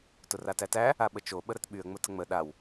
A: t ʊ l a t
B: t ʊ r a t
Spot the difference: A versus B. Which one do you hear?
B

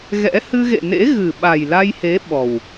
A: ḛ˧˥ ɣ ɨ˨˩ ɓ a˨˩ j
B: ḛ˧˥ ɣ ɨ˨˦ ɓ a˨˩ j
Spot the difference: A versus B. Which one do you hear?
A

